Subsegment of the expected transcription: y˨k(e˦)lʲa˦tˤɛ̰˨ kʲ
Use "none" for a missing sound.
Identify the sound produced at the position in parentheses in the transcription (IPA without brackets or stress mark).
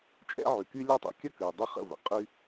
y˦